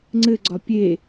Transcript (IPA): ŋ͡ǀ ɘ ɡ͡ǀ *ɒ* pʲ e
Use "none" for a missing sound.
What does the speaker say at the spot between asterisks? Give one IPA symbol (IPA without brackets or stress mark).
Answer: ɒ